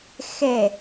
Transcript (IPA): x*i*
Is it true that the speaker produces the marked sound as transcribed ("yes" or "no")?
no